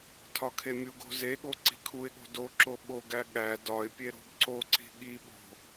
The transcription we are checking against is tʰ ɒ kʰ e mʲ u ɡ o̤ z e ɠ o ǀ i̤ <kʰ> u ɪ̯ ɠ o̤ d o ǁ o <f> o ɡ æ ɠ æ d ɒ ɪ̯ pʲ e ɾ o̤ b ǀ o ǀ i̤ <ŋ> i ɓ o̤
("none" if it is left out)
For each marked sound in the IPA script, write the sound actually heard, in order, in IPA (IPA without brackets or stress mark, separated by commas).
kʰ, ɓ, ɠ